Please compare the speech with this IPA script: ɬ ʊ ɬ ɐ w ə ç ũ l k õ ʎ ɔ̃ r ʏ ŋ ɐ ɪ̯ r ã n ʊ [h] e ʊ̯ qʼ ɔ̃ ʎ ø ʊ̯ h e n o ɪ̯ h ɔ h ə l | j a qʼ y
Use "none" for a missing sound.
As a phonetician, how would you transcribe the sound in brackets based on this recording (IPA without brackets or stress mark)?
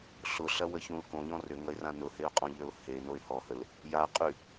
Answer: h